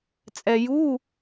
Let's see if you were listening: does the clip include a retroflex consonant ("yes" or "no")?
no